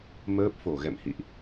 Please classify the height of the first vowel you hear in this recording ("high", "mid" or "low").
mid